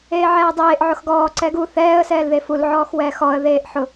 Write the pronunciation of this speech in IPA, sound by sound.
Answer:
eː ʕ ɛː dˤ eː ʔ ʕ ʊ x ɡ ɔː ǀ ɛ ɡ u θ ɛː ə̯ s ɛː l ð e f u l ʕ ɔː x w ɛː x ɔ ə̯ ð eː ʔ ħ ʊ

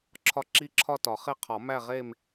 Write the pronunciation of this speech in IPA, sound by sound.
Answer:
ǁʰ ɒ˥˧ ǁ i˥˧ ǁʰ ɒ˥˧ t ɒ˨˩˦ χ e˥˧ qʰ ɒ˨˩˦ m æ˥˧ ʁ e˥˧ m

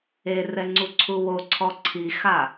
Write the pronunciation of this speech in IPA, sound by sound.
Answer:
e r ɛ ŋ͡ǀ u ǀʰ u w o ǀʰ ɔ ǀʰ i x a

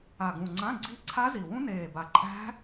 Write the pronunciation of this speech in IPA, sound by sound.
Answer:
a˨˩ ɡ ũ˨˩ ŋ͡ǀ ã˧˥˧ ɡ͡ǀ i˦˥ ǀʰ a˦˥ z i˨˩ w ũ˦˥ n eː˨˩ b a˨˩ ǃʼ æ̤˦˥

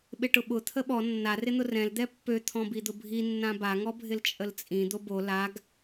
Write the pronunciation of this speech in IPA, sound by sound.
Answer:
ɓ ɪ ʈ ʊ ɓ ʊ t̪ʰ ə ɓ ɔ nː a r ɪ n̪ ʊ r ɛ̃ l d̪ ɛ pː ø t̪ʰ ɔ̃ b i d̪ ʊ bʱ i nː ã b a ŋ ɔ bʱ ɪ l t͡ʃʼ ə l t͡sʼ ĩ d̪ o b o l a ɡ

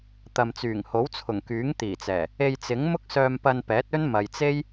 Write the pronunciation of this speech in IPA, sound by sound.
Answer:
t̪ ɐ˨ m t͡s yː˨˩ ŋ h o˨˥ w t͡sʰ ʊ˨˩ ŋ k yː˨˥ ŋ t̪ iː˨˩ t͡s ɛː˨˩ | e˧ j t͡s ɪ˨˥ ŋ m ʊ˥ k̚ s œː˧ m p ɐ˧ n p ɛː˨˥ t̚ ɵ˥ n m ɐ˨ j t͡s e˥ j

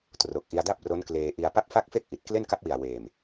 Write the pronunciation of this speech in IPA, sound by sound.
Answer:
t r o˨˩ k̚ ʔ i˧ a̯ d a˥˩ p̚ r o˦˥ n k l eː˧ ʔ i˧ a̯ p a˥˩ p̚ f a˥˩ k̚ f e˥˩ k̚ ʔ i˨˩ t̚ k l e˥˩ n k a˦˥ p̚ w i˨˩ a̯ w eː˨˩ m

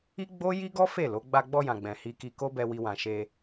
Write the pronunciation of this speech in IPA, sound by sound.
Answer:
i˦ ɡ͡b o˦ j i˦ ɡ ɔ˦ f e˦˨ l o˨˦ ɡ͡b a˧ ɡ͡b ɔ˧ j ã˨ ɡ͡b ɛ̃˨ h i˧ k i˧ k o˦ b ɛ˧ w i˧ w ã˨ ʃ e˧

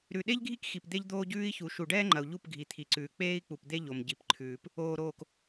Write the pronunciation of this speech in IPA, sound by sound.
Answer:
ɾ ʉ˨ ɗ e˦ ʎ ɡʱ i˦ k x i˨ p d̪ e˦ ʎ d̪ oː˦ ɟ ʉː˦ i̯ ç u˨ ʃ u˨ ɖ ɛː˦ ŋ͡ǃ ɐ˨ u̯ ʎ u˦˨ p ɡʱ i˨ t̪ʰ i˨ ǀ ʉː˨ k͡p eː˦ i̯ k͡p u˨ p d̪ e˦ ʎ o˨ m ɟ i˨ p ǃʰ ʉː˨ p | oː˨ ɾ oː˨ k

